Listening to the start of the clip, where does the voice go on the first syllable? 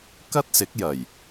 high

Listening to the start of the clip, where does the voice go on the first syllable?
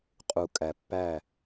low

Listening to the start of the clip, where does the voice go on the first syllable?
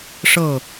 falling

